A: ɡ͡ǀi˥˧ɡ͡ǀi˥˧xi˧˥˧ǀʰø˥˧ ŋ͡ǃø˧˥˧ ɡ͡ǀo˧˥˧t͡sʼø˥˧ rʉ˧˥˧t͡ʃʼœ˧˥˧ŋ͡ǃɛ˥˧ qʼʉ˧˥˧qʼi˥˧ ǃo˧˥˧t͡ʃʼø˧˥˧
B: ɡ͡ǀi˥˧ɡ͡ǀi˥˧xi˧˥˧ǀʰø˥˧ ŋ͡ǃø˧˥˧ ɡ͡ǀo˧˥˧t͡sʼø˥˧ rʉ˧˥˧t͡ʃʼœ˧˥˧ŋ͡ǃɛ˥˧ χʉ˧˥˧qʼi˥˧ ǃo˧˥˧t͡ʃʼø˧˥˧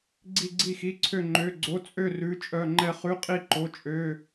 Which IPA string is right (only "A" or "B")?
B